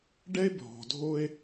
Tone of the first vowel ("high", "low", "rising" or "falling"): high